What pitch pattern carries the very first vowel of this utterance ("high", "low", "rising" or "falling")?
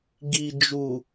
low